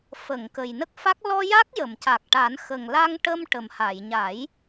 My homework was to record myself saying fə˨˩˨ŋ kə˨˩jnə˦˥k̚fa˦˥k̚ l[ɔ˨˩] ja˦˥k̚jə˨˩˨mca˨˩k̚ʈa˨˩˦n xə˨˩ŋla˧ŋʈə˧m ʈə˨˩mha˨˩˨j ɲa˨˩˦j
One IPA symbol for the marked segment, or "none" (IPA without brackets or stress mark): ɔ˧